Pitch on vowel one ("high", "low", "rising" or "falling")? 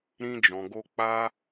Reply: high